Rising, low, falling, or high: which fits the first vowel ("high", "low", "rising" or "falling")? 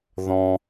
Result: high